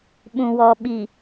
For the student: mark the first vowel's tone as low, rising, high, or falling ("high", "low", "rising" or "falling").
low